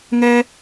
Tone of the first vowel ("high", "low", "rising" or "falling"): high